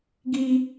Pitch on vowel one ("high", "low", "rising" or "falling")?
high